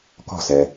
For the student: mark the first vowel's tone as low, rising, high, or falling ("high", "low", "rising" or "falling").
falling